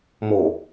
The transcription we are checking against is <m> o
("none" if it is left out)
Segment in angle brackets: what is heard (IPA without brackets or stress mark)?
m